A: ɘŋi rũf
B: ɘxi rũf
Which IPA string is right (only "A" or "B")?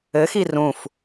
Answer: B